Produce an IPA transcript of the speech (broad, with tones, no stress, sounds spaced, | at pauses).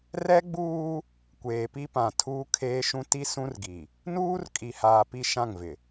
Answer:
r ɛ˦ ɡ͡b uː˦ | kʷ eː˨ p i˦ p ã˨ tʰ uː˦ kʰ eː˦ ʃ ũ˦ t i˦ s ũ˦ r ɡ i˨ | n uː˦ r kʼ i˨ h aː˨ p i˦˨ ʃ ã˦˨ ŋ v ɪ˨